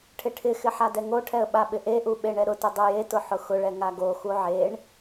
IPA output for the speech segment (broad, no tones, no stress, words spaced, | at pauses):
ʈʰɪʈʰɪxɪ ħadɛŋoʈʰɛə̯ ɓaɓɪʔeʔu ɓeɳɛɾʊtʊ dˤojetʊ ħʊxʊɭɛ ŋaɡoxu ʕeɳ